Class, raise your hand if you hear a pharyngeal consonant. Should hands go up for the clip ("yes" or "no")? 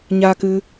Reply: no